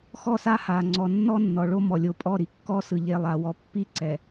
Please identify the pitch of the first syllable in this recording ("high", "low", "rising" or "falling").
falling